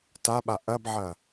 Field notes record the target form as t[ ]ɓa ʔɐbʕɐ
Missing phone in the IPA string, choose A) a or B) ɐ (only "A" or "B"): A